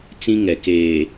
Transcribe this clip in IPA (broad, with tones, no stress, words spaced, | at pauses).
t͡sĩ˦ŋɛ˨keː˨